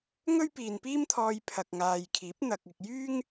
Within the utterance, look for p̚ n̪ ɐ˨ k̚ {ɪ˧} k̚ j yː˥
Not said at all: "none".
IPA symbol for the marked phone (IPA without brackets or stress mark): ɪ˨